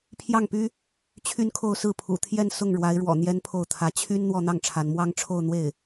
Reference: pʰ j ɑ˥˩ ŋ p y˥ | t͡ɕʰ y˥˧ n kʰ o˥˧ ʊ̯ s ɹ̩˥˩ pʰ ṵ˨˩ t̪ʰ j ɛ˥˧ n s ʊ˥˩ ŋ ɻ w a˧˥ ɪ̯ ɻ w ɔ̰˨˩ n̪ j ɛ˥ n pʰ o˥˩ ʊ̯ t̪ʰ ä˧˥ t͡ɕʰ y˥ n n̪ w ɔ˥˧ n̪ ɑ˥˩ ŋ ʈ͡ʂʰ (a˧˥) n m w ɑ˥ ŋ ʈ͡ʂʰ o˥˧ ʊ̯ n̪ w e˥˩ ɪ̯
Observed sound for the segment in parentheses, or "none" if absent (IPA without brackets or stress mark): a˧˥